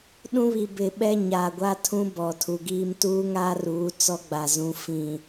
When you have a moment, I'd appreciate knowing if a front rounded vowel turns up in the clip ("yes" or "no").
no